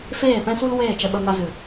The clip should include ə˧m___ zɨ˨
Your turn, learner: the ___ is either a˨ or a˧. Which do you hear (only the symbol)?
a˧